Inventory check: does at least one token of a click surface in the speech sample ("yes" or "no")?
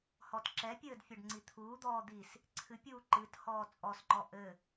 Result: yes